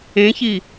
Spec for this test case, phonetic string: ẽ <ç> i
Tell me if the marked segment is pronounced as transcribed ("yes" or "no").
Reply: yes